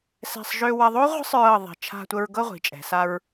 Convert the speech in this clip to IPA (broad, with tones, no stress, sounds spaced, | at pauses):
s ɛ̤˧˩ sˤ ʒ ø˧ w ɐ˧ ðˤ o˥ ʁʷ ə̤˥ sˤ ɹ ɤ˧˩ ðˤ i̤˩˧ t͡ʃʰ a̤˧ tʷ ə˧ ɹ ɡ ɤ˥˧ ʁʷ i̤˩˧ t͡ʃʼ ɛ̤˩˧ s a˧ ɹ